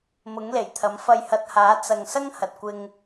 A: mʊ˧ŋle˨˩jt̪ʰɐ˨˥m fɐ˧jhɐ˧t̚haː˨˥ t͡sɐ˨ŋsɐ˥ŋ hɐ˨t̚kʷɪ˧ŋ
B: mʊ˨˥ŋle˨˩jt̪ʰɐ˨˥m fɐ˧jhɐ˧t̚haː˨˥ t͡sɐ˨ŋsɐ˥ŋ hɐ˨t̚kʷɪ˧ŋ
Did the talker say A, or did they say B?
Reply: B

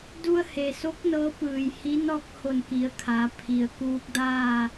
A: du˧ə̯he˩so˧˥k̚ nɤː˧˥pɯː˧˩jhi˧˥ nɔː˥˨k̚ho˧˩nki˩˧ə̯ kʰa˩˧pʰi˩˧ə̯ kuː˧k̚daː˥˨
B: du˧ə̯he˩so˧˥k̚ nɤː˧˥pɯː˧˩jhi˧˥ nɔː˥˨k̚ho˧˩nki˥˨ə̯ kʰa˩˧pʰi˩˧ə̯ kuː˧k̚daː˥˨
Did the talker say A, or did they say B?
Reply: A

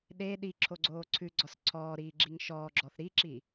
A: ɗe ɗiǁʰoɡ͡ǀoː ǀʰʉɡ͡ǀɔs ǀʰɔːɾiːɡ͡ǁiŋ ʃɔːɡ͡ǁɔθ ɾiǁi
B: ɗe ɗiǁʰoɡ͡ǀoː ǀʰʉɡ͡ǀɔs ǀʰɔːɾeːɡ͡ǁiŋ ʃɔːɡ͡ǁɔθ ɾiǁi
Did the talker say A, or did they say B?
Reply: A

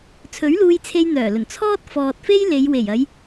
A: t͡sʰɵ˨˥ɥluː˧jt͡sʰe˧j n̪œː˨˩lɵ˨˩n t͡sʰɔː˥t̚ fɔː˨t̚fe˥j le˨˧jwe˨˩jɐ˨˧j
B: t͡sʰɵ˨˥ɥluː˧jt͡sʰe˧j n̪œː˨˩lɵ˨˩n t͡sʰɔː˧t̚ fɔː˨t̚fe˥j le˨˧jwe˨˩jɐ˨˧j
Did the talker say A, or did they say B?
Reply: A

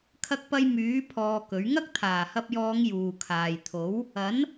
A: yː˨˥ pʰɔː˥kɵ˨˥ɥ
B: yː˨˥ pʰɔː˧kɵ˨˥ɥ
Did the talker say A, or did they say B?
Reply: B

